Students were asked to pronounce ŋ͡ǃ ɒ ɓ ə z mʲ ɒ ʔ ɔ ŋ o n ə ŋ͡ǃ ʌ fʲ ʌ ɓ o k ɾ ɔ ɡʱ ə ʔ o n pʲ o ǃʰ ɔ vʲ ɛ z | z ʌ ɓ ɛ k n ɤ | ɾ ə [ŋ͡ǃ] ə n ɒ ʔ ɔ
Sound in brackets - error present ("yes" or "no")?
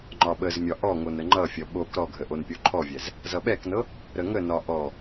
yes